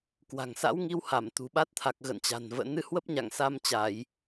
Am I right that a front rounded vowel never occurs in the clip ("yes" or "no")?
yes